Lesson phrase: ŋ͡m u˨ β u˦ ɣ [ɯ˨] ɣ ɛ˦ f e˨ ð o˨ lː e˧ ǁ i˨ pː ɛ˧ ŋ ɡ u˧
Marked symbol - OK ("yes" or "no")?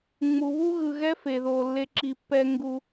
yes